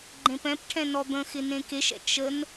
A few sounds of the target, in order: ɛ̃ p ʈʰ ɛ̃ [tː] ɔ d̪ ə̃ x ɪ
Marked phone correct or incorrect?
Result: incorrect